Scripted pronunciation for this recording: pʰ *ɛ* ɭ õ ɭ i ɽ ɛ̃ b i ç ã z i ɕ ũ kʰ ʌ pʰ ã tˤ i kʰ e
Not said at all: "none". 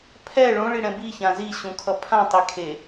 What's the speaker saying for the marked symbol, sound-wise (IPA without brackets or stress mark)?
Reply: ɛ